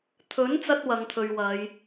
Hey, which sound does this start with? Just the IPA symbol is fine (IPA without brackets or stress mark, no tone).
t̪ʰ